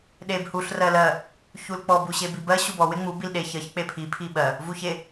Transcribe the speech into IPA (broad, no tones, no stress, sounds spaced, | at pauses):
ɗ e b h u ɬ r ɜ l ɜ | ç u l k͡p ɔ b u ɕ e b i b ɜ ɕ u b ɔ w e ŋ͡m u b i l ɗ e ç ɜ ç k͡p e pʰ i pʰ i ɓ ɜ | v u ç e